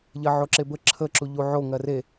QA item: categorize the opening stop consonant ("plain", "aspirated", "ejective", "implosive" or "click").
click